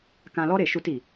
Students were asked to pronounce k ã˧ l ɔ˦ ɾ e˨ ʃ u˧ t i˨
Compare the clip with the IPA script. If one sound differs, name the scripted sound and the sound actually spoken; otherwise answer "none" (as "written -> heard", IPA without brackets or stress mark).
none